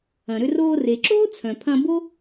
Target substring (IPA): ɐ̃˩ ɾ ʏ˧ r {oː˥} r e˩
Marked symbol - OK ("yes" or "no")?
no